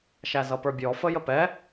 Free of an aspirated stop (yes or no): yes